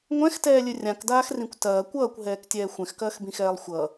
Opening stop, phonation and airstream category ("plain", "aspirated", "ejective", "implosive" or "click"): plain